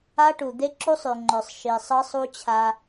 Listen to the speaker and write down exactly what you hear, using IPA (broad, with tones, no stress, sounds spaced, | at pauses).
a˦ ʈ u˨ d̪ e˦ ǁ u˦ sˤ ʉ˨ ŋ͡ǃ œ˨ sˤ ʃ i˨ sˤ ɯ˦ sˤ u˦ t͡ɕʰ a˦